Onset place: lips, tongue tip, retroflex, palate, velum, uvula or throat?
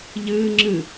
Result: palate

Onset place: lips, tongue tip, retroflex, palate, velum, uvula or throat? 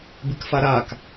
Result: lips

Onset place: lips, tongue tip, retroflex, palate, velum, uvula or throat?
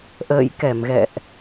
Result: throat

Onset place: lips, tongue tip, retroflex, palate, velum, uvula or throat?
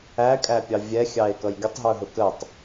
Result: velum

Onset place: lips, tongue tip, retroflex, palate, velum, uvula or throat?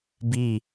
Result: lips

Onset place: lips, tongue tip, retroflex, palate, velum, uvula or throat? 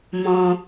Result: lips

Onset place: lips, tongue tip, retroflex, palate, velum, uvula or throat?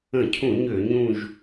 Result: palate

